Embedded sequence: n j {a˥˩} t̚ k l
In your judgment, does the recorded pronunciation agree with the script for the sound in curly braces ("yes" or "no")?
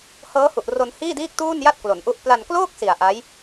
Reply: yes